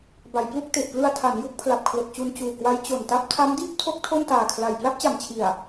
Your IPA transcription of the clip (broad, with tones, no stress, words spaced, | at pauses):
ba˩˦jplu˥˩k̚ te˨˩ʔplɯ˧a̯ tʰa˩˦n ju˦˥k̚pʰla˨˩p̚kʰlo˨˩k̚t͡ɕu˧n t͡ɕuː˨˩kwa˦˥j t͡ɕo˨˩nta˥˩p̚ tʰa˦˥mdiː˥˩p̚tʰo˦˥k̚ tʰo˥˩ntaː˨˩kʰla˨˩j pla˥˩p̚t͡ɕa˨˩mt͡ɕʰi˨˩a̯